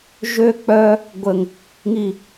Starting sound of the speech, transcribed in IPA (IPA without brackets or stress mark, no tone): ʒ